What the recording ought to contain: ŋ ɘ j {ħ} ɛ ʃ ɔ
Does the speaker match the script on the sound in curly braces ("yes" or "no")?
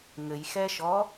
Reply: no